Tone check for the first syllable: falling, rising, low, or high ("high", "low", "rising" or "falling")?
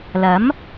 rising